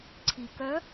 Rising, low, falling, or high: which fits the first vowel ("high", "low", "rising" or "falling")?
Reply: low